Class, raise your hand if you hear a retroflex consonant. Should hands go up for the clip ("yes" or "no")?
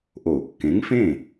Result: no